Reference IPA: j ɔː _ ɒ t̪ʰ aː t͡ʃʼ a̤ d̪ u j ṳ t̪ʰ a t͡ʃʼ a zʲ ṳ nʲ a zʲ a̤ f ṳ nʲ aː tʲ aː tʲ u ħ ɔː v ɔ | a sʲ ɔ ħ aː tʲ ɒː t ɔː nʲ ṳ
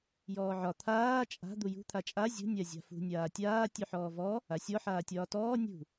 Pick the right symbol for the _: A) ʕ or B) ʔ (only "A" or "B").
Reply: A